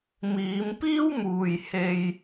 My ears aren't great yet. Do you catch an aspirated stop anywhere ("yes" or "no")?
no